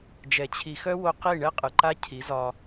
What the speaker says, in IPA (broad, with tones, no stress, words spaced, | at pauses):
d͡ʒɛ˨t͡ɕʰi˨xœ˦wo˧ qi˦˨ ɳɛ˦qʼɯ˨ǃa˦ cʰi˨˦zɒ˧